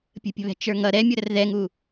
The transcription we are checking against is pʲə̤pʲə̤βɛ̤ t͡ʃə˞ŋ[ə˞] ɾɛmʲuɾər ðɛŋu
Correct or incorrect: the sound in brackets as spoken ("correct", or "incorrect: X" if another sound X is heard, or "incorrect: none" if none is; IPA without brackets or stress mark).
incorrect: ʌ